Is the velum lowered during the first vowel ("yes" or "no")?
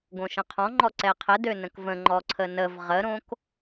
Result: yes